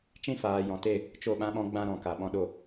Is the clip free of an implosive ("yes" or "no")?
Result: no